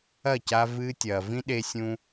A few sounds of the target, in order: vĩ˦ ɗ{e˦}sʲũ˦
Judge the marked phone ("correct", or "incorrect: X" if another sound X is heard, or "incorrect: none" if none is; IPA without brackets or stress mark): correct